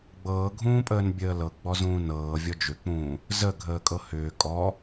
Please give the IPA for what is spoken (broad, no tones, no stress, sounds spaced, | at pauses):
ɡ͡b ɤː ɡʱ ũː pʼ əː n bʲ əː l ɤ ɡ͡b ɔ z ũː n ɤː vʲ ɔ d͡ʒ ʏ k͡p ũː | z ə ɡʱ əː kʼ ɤ h ʏː kʼ ɔ